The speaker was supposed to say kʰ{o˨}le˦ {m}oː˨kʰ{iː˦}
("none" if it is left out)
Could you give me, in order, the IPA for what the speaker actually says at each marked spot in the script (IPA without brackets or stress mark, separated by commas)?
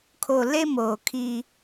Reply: o˨, m, i˦